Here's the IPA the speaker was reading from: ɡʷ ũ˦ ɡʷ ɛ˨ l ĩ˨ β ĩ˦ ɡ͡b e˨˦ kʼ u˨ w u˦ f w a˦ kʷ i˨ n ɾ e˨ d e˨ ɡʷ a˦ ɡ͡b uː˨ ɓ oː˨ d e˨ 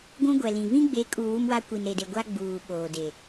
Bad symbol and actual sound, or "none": f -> m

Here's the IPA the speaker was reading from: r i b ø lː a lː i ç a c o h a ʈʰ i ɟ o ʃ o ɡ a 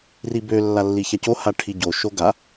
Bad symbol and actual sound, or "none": none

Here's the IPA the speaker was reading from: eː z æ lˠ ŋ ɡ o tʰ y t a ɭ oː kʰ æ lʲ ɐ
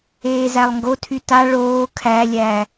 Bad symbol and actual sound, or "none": ɐ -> æ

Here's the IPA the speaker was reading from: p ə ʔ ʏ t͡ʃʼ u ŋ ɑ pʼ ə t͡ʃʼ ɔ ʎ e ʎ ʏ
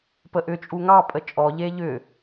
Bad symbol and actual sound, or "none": none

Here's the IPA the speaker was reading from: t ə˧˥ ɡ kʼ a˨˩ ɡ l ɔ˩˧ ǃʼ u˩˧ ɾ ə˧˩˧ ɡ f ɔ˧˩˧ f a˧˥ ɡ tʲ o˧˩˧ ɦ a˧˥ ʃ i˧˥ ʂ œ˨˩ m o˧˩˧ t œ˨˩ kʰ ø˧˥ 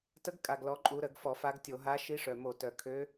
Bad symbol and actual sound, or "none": none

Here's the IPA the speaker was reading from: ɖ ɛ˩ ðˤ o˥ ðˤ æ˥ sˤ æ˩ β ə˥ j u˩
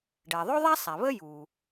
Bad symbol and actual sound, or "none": none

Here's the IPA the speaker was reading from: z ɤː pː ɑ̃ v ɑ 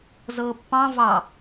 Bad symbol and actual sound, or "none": none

